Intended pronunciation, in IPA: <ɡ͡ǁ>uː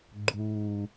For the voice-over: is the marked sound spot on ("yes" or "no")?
no